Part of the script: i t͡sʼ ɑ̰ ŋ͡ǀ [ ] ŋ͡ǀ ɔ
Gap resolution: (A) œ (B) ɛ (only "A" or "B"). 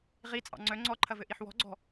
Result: A